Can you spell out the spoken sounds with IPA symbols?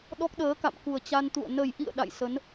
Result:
ɗɔ˦˥k̚ɗəː˨˦ka̰˧˨m ku˨˩ə̯ t͡ɕa˧nt̪ṵ˧˨ə̯ nə˨˩jʔḭ˧˨ə̯ ɗa̰˧˨jsə˨˦n

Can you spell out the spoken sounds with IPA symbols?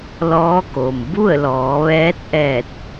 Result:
lɔː˧˥ko˩m bu˥˨ə̯lɔː˩˧ʋɛː˧˥t̚ʔɛː˧˩t̚

